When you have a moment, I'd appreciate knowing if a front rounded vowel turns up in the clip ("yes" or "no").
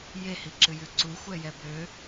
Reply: yes